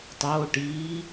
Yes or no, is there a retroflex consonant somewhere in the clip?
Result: yes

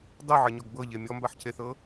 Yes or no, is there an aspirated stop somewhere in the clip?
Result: yes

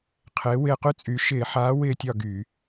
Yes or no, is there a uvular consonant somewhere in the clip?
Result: yes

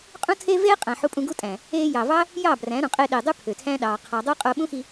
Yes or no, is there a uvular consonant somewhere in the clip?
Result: yes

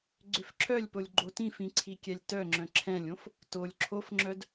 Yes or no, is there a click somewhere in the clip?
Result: yes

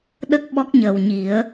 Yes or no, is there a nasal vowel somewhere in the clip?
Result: no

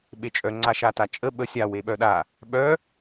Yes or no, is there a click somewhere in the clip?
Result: yes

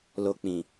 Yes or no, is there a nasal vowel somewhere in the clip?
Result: yes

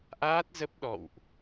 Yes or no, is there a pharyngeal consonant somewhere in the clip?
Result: no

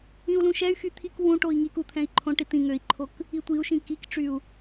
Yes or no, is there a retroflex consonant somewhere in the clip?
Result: yes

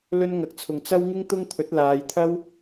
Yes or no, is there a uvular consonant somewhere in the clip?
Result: no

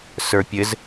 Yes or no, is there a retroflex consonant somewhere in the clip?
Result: no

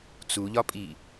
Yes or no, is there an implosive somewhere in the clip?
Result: no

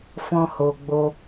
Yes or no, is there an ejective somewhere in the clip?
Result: no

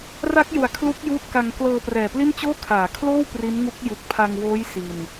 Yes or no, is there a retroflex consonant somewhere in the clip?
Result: no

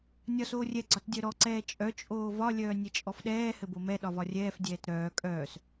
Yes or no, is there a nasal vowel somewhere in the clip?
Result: no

